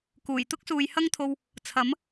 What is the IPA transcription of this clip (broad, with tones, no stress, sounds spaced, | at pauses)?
k uː˨˩ j t̪ ʊ˥ k̚ s uː˨ j h ɐ˥ ŋ t̪ʰ o˧ w | t͡sʰ ɐ˨˥ m